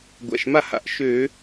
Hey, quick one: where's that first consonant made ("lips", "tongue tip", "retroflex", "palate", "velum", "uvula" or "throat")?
velum